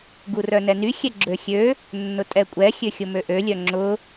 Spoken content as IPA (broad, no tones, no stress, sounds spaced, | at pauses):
ɡ u r œ n ɛ n y xʲ ɛ ɡ͡ǁ ø xʲ ø | nː ʊ tʼ ɛ kʷʼ ɛ xʲ ø xʲ ʊ m ø ʔ ø lʲ œ ŋ͡ǁ ʊ